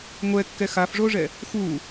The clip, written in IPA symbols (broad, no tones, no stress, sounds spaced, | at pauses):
ŋʷ ɛ kː ɛ x a f ʐ o ʐ ɛ | x u